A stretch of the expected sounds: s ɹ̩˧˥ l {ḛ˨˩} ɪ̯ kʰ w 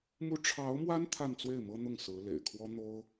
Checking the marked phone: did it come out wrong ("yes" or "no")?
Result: no